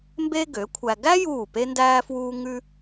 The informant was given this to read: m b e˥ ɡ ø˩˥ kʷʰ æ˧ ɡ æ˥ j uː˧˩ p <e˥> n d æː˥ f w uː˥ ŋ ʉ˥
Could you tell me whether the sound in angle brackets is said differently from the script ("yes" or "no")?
no